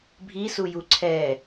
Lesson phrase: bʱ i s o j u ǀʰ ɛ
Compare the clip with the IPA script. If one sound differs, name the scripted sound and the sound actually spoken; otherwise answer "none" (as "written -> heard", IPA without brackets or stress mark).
o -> u